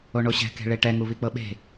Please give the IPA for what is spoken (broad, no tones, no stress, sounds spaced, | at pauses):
o ɳ o ɕ ɛ̤ k e̤ ɭ e ʈ ɛ ŋ u β i k͡p ɤ ɓ e̤